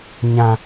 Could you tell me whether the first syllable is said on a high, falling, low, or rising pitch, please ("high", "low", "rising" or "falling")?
low